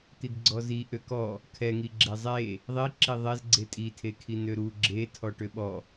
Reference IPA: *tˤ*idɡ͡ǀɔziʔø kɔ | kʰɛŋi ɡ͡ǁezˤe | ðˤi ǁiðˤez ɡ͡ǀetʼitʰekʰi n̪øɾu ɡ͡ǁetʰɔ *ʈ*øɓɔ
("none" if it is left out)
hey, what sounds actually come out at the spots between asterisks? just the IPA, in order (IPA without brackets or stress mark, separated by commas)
t̪, ʈ